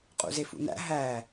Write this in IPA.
qʼṵzefṵnæ̰ ɦæ

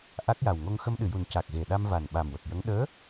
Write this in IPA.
ʔa˦˥k̚ja˨˩w ŋo˧ŋxə˧mɗɨ˨˩˨ju˨˩n ca˨˩k̚ɣe˨˩ɗa˧m va˨˩n ɓa˨˩mwə˨˩k̚jə˧˥ŋ ɗəː˧˥

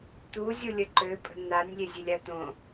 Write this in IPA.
t̪uzʲu lʲəǃøpʼə̤ n̪anʲ lʲezʲelʲat̪õ

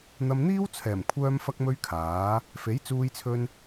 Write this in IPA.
n̪ɐ˧mn̪iː˥wt͡sʰɛː˨˩m kʷʰœː˥mfɐ˥k̚mɵ˥ɥkʰaː˨˥ | fe˨˥jt͡suː˧jt͡sʰɵ˧n

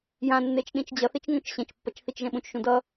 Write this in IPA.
jãnːet͡ʃ ɗĩt͡ʃd͡ʑʌθit͡ʃ ŋõt͡ʃɕẽt͡ʃpːʌt͡ʃ θit͡ʃʒɛ̃ɓũt͡ʃʃũ dʌ

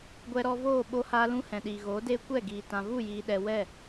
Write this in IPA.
ɡʷɛ˧ɾɔ˧voː˦˨ ɓo˦haː˦lũ˦ hɛ̃˨ɗiː˨ɣoː˨˦deː˦ kʷɛ˦˨ ɡiː˨ tã˨vu˦˨jiː˨ɗɛ˨ wɛ˦˨

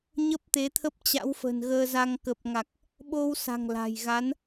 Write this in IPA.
ɲə˦˥p̚t̪e˨˦t̪ʰə˦˥p̚ t͡ɕa̰˧˥wfə̤˨˩nɣəː˧za˧ŋ kə˨˩p̚ŋa˨˩k̚ | ɓo˧wsa̤˨˩ŋ la̤˨˩jɣa˨˦n

